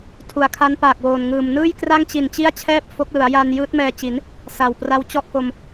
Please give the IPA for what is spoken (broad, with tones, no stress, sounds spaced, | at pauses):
tʰ u˨˩ a̯ kʰ a˦˥ n p aː˨˩ k̚ w oː˨˩ n ŋ ɯː˨˩ m n ɯː˥˩ j k r a˥˩ ŋ t͡ɕ i˨˩ n t͡ɕ i˥˩ a̯ t͡ɕʰ ɛː˥˩ p̚ f o˦˥ k̚ l ɯ˩˦ a̯ j a˧ n j ɯː˦˥ t̚ m ɛː˧ t͡ɕ i˩˦ n | s a˨˩ w p r a˦˥ w t͡ɕ ɔ˥˩ ʔ k o˧ m